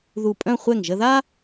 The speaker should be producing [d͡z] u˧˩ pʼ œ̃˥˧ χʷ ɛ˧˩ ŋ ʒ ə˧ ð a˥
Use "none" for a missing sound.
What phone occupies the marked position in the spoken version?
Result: ð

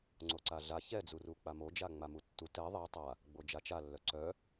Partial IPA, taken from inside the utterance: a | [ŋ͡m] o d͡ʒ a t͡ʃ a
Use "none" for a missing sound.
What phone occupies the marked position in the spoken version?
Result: ɡ͡b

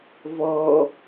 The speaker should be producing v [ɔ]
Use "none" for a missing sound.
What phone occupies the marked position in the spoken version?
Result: ɔ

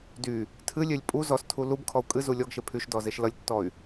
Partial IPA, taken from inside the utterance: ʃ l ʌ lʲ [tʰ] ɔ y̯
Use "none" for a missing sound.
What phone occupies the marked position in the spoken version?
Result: tː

